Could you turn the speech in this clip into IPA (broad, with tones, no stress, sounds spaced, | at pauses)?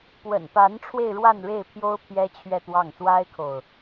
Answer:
p w ə̰˨˩ n p a˧˥ n ʈ͡ʂʰ w e˧ ɪ̯ ɻ w a˥˧ n ɻ e˥˩ ɪ̯ pʰ j o˥ ʊ̯ pʰ j ɛ˥ t͡ɕʰ ɥ ɛ˥˧ t̪ w ɑ˥˩ ŋ s w a˥ ɪ̯ kʰ o˨ ʊ̯